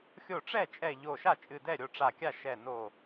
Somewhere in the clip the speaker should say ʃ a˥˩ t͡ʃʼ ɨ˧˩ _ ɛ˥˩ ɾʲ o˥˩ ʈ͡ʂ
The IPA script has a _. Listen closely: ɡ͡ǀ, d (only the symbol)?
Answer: d